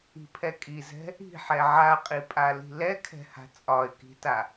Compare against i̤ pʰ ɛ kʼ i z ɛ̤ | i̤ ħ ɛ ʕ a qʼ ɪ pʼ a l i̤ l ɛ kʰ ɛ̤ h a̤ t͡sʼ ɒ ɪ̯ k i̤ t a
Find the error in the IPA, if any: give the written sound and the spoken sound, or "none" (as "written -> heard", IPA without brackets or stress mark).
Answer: ɪ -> i